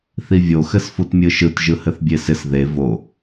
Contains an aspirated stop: no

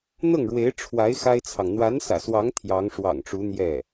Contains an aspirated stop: yes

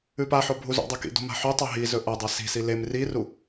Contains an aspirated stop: no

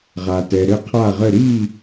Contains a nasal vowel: no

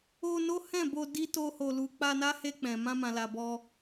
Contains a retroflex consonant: no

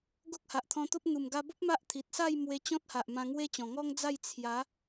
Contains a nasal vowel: yes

